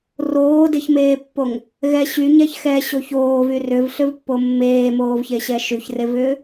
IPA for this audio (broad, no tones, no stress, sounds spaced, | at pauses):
r oː d e ç m eː pː o ŋ | ɣ ɛ ɕ y ɲ ɛ ç x ɛ ɕ o ç oː v y r ʏ v ɬ ʏ v pː o mː eː m oː v ç e ɕ ɛ ʃ y ç r e v ʏː